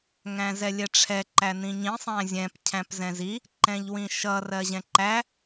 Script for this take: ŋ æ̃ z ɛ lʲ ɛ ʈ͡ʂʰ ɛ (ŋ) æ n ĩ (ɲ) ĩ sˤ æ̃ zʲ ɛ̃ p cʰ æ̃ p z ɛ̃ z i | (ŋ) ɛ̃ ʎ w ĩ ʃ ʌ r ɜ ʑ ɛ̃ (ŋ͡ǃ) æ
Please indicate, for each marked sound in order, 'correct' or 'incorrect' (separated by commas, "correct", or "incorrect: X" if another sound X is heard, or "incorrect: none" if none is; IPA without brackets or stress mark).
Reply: incorrect: ǃ, correct, incorrect: ǃ, incorrect: ǃ